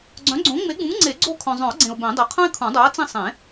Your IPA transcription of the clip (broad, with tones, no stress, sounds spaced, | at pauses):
ɡ͡ǀ œ̃˨˥ ɡ͡ǀ õ˨˥ ŋ͡m e˨˥ ɡ͡b ũ˨˥ ŋ ŋ͡ǀ e˨˩˦ ɡ͡ǀ o˦˨ kʰ œ̃˨ zˤ œ̃˨˩˦ ʊ̯ ɡ͡ǀ ẽ˨ ʊ̯ b ẽ˨˩˦ dˤ i˨ qʰ œ̃˥ ɪ̯ kʰ ũ˨˩˦ dˤ œ˨˥ ə̯ t͡s ĩ˦˨ sˤ ẽ˨˩˦